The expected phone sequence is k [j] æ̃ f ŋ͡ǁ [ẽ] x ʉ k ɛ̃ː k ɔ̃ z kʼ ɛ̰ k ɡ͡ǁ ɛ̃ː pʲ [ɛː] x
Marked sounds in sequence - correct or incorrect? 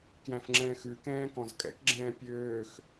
correct, incorrect, incorrect

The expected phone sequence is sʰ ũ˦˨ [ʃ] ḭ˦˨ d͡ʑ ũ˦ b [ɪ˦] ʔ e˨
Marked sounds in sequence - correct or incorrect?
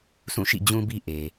correct, incorrect

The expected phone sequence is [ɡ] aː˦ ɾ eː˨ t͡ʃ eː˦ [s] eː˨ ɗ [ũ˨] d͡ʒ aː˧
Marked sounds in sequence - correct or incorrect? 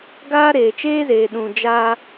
correct, incorrect, correct

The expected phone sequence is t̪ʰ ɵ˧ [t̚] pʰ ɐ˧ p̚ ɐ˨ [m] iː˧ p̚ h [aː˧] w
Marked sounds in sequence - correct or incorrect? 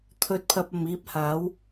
correct, correct, incorrect

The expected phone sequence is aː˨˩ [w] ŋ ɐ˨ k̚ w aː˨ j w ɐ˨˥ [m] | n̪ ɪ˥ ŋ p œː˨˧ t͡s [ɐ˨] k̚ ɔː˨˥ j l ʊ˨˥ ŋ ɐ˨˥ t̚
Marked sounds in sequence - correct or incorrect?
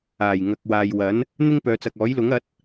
incorrect, incorrect, correct

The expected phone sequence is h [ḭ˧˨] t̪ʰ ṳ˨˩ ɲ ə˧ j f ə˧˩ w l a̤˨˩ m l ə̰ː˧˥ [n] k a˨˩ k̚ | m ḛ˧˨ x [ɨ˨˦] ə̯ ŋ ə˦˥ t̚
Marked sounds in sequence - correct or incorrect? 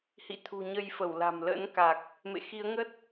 correct, correct, incorrect

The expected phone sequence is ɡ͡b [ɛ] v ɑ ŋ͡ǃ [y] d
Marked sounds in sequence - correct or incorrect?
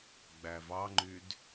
incorrect, correct

